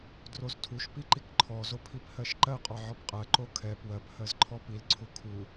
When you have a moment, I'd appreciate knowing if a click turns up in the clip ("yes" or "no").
yes